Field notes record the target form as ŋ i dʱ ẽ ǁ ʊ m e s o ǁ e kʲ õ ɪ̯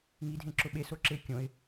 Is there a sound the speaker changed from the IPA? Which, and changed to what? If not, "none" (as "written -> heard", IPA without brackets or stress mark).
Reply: m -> ɓ